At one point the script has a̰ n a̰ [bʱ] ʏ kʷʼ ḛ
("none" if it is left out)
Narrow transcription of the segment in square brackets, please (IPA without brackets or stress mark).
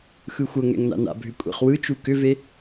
bʱ